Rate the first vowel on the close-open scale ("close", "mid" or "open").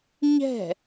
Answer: mid